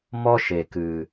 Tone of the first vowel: high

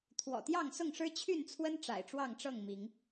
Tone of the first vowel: low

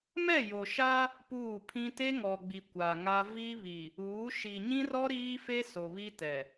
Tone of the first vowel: falling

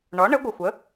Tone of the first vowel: rising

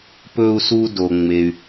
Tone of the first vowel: high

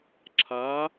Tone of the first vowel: rising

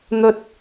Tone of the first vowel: high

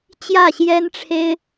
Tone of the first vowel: falling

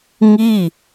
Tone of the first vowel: falling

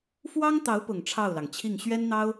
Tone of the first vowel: high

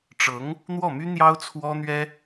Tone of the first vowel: rising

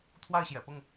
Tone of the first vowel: falling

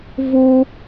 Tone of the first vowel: high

